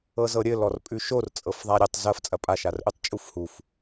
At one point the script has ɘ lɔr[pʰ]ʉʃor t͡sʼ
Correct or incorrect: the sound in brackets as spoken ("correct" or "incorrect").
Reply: incorrect